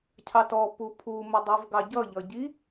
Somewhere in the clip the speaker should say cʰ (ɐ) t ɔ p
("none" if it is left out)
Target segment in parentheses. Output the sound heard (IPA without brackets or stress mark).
ɑ